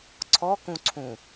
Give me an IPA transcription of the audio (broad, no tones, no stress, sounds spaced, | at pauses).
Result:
ǀʰ ɔ k ũ ǀʰ ũ